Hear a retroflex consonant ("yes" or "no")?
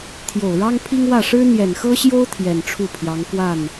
yes